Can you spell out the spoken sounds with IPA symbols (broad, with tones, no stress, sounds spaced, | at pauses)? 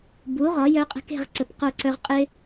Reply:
b u˩˥ ʁ ɒ˩˥ j œ˦ qʼ ə̤˦ k e̤˦˨ ʁ ǀ ə˨˩ p q o˦˨ ǀ œ˦ ʁ qʼ ɪ˦